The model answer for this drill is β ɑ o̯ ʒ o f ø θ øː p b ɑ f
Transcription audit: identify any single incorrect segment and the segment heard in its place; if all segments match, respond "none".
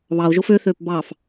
none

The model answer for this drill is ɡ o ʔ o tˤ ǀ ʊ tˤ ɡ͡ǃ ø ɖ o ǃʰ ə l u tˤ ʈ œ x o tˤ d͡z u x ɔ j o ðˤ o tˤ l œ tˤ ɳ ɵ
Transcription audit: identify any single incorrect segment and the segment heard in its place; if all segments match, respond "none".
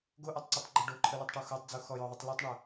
ɵ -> œ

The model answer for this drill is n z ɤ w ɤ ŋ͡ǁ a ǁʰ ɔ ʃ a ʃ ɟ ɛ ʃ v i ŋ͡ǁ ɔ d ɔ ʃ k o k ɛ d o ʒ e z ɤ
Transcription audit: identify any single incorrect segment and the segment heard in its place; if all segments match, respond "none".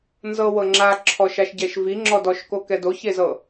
ʒ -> ç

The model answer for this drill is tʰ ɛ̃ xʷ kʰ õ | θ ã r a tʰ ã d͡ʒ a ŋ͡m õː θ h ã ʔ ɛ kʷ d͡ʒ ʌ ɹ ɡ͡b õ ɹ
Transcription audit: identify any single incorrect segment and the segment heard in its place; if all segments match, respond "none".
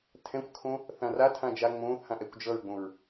none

